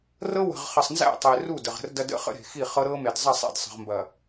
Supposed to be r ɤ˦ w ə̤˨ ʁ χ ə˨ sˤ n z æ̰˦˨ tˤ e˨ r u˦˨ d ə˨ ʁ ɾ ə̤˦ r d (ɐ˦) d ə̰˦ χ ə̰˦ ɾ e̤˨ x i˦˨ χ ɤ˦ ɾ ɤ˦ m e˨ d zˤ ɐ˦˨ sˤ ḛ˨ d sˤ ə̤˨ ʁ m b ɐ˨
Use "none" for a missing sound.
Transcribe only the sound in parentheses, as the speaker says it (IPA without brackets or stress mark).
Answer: ɐ˦